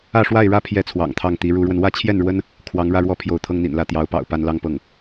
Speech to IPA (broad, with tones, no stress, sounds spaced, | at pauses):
ä˥˧ ʂ w a˥˩ ɪ̯ ɻ ä˥ pʰ j ɛ˥˩ t͡sʰ w ɑ̰˨˩ ŋ t̪ʰ ɑ˥˩ ŋ t̪ i˧˥ ɻ u˧˥ ɻ w ə˧ n w ä˥˧ t͡ɕʰ j ɛ˥˩ n ɻ w ə˥ n | kʰ w ɑ˧˥ ŋ ɻ ä˥˧ ɻ w ɔ˥˩ pʰ j o˧˥ ʊ̯ t̪ʰ ɤ˥ ŋ n̪ ḭ˨˩ n l ä˥˩ t̪ j ɑ˧˥ ʊ̯ p ɑ̰˨˩ ʊ̯ p a˥˧ n l ɑ˥˧ ŋ p ɤ˥˩ ŋ